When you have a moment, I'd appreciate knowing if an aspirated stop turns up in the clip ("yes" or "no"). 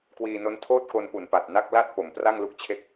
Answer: yes